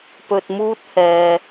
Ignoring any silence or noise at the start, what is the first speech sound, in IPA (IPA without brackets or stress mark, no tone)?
p